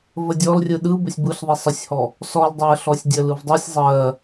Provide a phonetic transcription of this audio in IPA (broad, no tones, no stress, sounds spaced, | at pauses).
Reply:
v ə dʲ ɔ l rʲ ɯ ɗ ɯ b ə sʲ b ɯ ɬ ðˤ i sˤ ə sʲ h ɔ | s ɔ l dˤ ɜ ɬ ɔ sʲ dʲ ə l ɯ v dˤ i sʲ zˤ ɜ